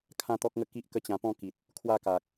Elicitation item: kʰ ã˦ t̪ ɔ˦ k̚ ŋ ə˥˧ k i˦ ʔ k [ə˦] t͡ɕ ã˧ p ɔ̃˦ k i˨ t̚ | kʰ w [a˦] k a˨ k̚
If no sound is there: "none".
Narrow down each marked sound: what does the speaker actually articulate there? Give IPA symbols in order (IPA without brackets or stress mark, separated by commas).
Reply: ə˦, a˦